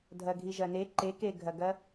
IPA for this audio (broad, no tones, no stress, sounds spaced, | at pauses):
dʱ ɐ ɡʱ i ʒ ɐ n e ǃ e k e ɡʱ ɐ ɡ ɐ